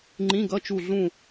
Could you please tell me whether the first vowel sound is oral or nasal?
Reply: nasal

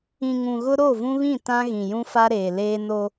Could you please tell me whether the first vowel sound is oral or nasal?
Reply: nasal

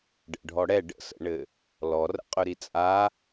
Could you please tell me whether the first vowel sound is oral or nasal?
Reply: oral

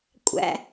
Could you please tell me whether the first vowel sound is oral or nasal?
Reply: oral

